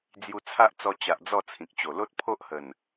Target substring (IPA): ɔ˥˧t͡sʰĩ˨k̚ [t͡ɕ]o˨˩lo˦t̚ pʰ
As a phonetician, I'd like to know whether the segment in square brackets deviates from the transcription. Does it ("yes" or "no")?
no